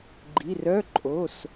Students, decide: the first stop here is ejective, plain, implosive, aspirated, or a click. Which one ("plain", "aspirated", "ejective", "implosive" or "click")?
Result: click